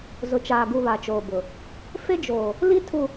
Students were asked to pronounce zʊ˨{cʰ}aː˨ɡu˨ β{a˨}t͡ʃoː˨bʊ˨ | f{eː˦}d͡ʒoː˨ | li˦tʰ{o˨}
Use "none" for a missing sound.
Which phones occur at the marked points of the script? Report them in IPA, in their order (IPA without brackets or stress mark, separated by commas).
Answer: t͡ʃ, a˨, e˦, u˨